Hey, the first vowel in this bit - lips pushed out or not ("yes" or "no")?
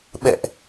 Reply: no